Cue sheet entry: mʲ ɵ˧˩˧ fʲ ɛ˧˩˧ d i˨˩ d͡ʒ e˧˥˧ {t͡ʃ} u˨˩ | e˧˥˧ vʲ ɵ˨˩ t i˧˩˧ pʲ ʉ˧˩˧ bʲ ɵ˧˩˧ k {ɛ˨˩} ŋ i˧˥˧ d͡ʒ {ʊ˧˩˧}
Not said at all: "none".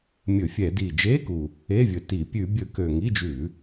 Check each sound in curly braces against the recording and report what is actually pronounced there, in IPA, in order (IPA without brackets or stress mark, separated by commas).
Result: k, ø˨˩, ʉ˧˩˧